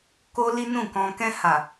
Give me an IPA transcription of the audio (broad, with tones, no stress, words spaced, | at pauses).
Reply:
ko˦li˦nũ˦˨kɔ̃˧ kɛ̃˧ha˨